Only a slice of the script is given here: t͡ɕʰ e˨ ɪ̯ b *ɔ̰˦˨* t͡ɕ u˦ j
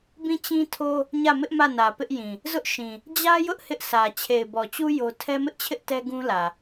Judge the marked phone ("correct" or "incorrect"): incorrect